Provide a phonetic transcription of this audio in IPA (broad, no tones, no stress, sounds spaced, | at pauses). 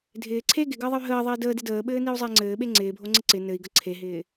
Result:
dʱ ɪː ǀʰ e ɡ ɪ ɡ əː ðˤ ə y̯ ɦ əː ðˤ ɪː d əː d ɪ d əː ɓ ɘː n i u̯ zˤ ɪː ŋ͡ǀ ɘː ɓ e ŋ͡ǀ ɪː bʱ o ŋ͡ǀ ɪ ǀ ɪ n ɘ i̯ ɡ ə ǀʰ e ɦ ɪː